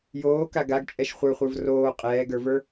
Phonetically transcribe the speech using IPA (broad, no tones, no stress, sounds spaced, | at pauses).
j oː k a ɡ a ɡ t͡ʃʼ ɛ ʃ χʷ ə˞ χʷ ə˞ v r oː qʼ ɛː ɡ ə˞ v ə˞